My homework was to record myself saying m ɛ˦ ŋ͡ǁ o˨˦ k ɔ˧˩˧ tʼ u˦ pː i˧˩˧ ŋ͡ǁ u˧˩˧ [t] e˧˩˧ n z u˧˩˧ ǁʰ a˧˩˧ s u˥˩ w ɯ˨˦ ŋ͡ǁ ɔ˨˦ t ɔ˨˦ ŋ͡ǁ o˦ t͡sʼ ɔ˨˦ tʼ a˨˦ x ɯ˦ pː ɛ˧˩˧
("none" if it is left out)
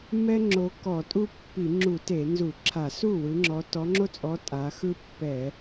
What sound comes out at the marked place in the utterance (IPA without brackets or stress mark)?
t